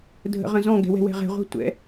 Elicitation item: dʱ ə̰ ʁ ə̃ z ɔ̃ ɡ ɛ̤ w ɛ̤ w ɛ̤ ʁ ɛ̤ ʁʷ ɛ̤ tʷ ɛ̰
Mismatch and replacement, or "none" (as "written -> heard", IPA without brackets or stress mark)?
none